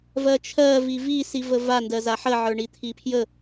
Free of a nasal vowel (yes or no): yes